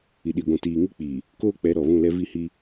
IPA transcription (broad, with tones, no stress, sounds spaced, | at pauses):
i˨ ɗ i˨ ɡʷ ũ˨ t iː˨ ŋ i˦ k͡p iː˨ | k oː˦ k͡p ɛ˨˦ ɾ ɔ˨ β ũ˦˨ l ɛ˦ v i˦˨ h iː˦